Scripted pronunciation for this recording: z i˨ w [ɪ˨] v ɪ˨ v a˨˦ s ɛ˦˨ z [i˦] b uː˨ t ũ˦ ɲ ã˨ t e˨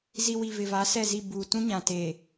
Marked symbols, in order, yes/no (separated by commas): no, no